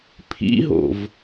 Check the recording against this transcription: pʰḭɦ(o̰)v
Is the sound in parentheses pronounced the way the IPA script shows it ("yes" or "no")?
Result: yes